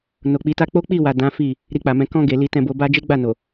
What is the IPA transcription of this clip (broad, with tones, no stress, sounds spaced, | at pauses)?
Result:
n o˨ k͡p i˨˦ t a˦ k͡p o˦ k͡p i˦˨ w a˨ d ã˨˦ f i˦˨ | ɾ i˧ k͡p a˨ m ɛ̃˧ k ɔ̃˧ ɡ e˨ l i˨ t ɛ̃˨ b o˨ b a˧ d͡ʒ e˦ ɡ͡b a˦˨ n o˨